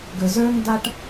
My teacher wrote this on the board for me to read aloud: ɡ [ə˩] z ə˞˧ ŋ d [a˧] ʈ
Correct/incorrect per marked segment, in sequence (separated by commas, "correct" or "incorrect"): correct, correct